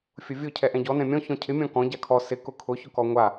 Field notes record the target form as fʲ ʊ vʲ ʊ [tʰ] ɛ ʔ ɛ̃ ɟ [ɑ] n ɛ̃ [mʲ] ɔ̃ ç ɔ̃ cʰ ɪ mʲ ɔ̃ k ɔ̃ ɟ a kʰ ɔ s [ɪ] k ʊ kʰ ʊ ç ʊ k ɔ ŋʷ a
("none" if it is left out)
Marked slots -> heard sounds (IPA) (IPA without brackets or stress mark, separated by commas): cʰ, ɔ, mʲ, ɪ